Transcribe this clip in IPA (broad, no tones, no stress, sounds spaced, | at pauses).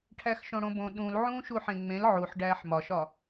ʈʰ æ x ʃ õ ɽ õ b õ ɗ ũ l ʕ ũː ʃ u ħ ẽ ŋ͡m ẽ l ʕ u ħ ɖ æː ħ m ɒ ʃ ɒ